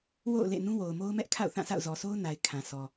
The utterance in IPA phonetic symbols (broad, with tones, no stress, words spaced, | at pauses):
wo̰˦˨ʊ̯lḛ˦˨ nũ˦wo˨ʊ̯mo˦ʊ̯ mɛ˦ʔkʰa̰˦˨ʊ̯ θã˦˨sa̰˦˨ʊ̯ zɔ˨so˦ʊ̯ na˨ɪ̯ kʰã˨sʰɔ˨